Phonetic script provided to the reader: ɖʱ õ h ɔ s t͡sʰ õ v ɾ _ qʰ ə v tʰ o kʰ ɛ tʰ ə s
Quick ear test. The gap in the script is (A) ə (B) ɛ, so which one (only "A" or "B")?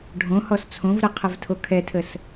B